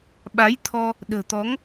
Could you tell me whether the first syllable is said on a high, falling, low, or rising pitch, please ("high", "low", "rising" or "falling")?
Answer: rising